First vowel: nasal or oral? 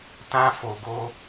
nasal